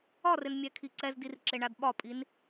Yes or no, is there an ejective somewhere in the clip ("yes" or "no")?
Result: yes